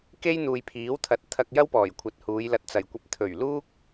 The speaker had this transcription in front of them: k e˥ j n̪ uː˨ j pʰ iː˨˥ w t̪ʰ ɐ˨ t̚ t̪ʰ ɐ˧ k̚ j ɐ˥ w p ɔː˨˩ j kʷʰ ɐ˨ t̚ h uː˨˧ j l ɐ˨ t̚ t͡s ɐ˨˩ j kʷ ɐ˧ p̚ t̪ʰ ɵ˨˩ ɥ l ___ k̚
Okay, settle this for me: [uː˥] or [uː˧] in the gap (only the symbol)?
uː˥